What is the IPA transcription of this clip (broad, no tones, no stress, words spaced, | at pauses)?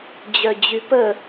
d͡ʑœd͡ʑypə